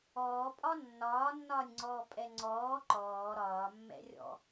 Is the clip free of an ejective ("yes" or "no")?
no